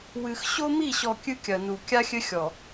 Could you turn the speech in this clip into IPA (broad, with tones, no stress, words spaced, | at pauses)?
wɨ˨x ɕo˦mi˦˨ɕɔ˨ kʲɨ˦kʲɐ˨nu˨ kʲa˦xʲɘ˦xʲɔ˨